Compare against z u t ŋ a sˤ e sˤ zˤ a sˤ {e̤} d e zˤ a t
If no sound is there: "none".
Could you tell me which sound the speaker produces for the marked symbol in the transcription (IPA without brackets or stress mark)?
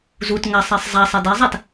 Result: e